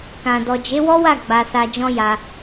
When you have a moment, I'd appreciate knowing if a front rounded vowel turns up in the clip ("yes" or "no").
no